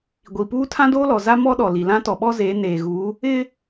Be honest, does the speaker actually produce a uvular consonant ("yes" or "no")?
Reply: no